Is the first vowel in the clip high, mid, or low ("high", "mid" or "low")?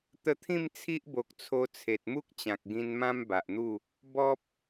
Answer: mid